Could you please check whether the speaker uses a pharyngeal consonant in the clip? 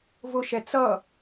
no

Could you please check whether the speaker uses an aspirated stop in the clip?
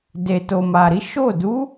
no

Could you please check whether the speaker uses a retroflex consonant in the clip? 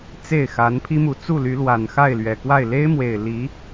no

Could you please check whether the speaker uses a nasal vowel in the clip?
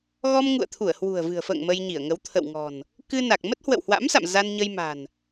no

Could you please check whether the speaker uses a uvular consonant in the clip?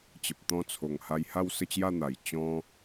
no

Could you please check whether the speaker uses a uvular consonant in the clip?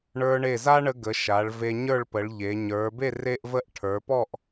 no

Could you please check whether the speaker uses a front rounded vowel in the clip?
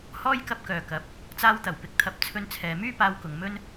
yes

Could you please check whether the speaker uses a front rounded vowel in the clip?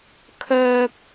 yes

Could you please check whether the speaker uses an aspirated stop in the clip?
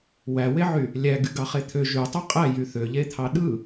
yes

